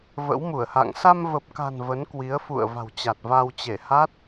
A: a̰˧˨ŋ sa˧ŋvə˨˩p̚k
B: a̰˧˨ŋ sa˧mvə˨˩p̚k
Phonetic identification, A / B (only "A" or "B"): B